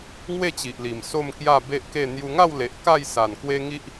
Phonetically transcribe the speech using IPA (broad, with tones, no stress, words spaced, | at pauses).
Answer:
ŋwe˥˧t͡ɕi˨ʔli˨˩m so˥˧mkja˥˧ be˦ʔke˥˧ n̪ju˧ŋa˥˧wle˨ʔ ka˥˧jsa˨˩n kwe˦ŋi˦ʔ